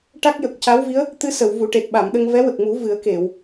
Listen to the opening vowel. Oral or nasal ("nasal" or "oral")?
oral